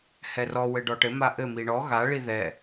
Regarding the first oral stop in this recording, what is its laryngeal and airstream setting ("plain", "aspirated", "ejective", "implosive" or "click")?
plain